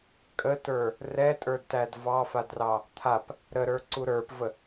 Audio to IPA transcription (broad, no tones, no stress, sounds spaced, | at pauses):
kʼ ə t ə˞ | r ɛ tʼ ə˞ d t æ d v ɑ f a d r ɑ | t̪ʰ a p | ɾ ə ɾ ə˞ ǀ u ɾ ə˞ p v ə